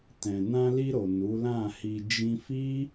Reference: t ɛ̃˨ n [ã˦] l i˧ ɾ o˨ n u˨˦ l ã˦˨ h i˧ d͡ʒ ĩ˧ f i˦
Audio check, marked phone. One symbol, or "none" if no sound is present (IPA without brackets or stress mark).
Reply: ã˧